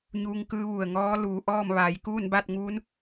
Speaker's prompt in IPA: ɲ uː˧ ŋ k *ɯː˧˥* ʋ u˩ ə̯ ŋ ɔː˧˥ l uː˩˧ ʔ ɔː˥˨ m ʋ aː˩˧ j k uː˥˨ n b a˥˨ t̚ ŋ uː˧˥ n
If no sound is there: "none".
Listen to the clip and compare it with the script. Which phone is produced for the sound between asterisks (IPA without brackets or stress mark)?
ɯː˧˥